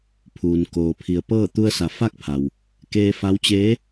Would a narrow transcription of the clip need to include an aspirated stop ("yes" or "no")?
yes